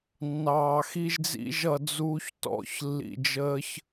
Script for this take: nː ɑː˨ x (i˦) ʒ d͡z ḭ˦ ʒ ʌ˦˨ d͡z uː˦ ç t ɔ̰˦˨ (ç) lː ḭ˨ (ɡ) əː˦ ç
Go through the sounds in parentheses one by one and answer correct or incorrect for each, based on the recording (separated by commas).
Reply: correct, correct, incorrect